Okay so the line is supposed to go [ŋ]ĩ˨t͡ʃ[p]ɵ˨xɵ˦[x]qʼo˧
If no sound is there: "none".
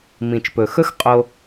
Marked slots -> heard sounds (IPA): m, p, x

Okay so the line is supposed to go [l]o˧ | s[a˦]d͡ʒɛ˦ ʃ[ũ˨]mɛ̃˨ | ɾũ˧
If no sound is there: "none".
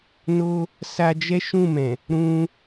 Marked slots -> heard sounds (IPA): n, a˧, ũ˦˨

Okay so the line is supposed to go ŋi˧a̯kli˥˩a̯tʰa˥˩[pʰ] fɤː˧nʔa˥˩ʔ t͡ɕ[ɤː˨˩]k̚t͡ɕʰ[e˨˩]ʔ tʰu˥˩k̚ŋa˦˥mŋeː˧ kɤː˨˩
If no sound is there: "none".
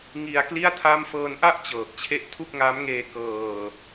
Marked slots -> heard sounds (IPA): m, ɤː˨˩, e˥˩

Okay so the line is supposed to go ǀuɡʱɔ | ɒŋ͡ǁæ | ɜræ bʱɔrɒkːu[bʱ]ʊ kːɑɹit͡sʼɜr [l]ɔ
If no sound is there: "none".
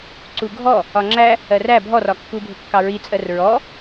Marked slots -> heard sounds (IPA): bʱ, ɹ

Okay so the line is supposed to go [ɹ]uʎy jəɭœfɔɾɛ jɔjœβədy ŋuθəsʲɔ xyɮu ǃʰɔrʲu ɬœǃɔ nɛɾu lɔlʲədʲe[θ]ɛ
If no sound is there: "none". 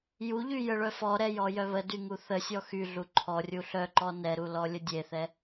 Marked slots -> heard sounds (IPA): j, θ

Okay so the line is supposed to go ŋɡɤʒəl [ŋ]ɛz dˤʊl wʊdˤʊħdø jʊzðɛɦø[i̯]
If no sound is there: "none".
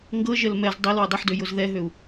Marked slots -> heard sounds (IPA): m, u̯

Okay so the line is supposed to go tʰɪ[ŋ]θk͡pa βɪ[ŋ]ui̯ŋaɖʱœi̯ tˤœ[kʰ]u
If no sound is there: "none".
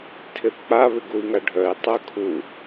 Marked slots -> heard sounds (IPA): none, ɡ, kʰ

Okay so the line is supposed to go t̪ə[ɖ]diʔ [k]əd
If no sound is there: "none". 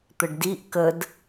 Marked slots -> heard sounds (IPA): ɖ, k

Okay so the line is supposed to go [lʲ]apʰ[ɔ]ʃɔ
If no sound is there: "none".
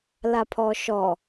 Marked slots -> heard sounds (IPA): l, ɔ

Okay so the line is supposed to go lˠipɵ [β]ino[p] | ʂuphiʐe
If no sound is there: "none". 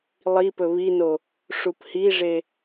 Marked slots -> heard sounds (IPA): β, none

